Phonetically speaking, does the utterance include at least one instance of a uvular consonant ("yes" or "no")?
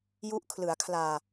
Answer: no